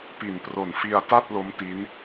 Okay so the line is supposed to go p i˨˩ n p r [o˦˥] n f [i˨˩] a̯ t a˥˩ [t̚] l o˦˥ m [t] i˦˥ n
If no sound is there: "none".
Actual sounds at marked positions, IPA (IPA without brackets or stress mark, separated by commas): o˨˩, i˧, t̚, t